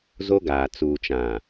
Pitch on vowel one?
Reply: high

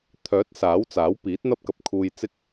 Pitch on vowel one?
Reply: rising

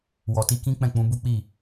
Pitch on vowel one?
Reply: low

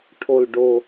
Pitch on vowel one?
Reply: low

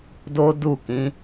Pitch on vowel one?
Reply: high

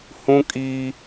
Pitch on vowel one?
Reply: high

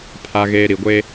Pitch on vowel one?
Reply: low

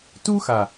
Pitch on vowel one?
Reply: high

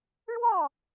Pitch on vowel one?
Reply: falling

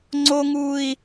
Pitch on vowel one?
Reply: high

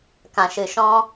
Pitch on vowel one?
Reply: low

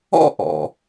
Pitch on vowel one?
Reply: high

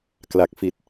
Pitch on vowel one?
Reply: low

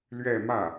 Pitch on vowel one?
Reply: falling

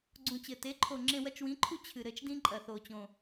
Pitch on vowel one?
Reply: low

